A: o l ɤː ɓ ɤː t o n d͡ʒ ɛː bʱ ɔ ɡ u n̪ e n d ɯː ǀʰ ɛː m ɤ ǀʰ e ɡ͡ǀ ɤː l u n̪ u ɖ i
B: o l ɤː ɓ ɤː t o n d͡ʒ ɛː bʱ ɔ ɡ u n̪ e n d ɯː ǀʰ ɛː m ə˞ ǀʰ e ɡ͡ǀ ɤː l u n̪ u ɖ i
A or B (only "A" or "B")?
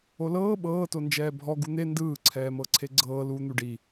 A